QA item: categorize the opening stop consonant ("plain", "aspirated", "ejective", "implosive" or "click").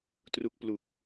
plain